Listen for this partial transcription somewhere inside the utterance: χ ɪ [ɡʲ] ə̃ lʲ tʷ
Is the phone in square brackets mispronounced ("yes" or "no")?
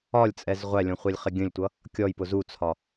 no